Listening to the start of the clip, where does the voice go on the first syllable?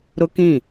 high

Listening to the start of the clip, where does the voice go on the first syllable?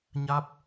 rising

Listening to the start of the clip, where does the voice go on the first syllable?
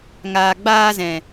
low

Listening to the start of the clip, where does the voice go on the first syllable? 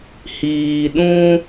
low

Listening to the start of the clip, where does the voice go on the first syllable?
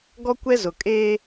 high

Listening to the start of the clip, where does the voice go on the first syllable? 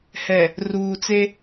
low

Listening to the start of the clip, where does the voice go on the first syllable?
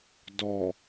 low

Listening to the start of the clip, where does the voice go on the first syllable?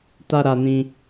high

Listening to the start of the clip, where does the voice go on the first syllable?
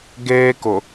high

